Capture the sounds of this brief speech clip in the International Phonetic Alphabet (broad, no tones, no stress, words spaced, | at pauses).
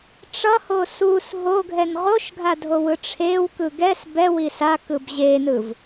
ʈ͡ʂʌho sus ɦoɡʱɛn ʁoʃɡʱadʱowɯ ʈ͡ʂʰewkɯ ɡɛs bɛwi sakɯb ʑenɯv